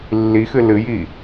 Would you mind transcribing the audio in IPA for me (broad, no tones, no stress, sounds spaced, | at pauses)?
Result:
lː i x ɨ l ɨ j i